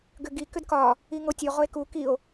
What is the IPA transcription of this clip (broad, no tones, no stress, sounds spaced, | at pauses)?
ɡ ʏ ɡ i k ʏ d k ɒ | i ŋ o tʲ o ʁ o e̯ k u k i o̯